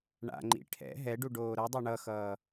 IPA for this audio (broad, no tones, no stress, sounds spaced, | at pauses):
ɳ a̰ ŋ͡ǃ ḭ ʈʰ ɛ̰ ɦ ɛ ɖ u ɖ oː ɾ ʌ dˤ a ɳ ʌ x ʌː